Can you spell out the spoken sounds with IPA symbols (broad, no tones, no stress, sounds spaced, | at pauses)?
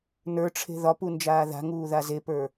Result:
n ə˞ ʈ͡ʂʰ e̤ ð ɒ p u n d͡ʒ aː ð a̤ ŋ uː ð a z e p ə˞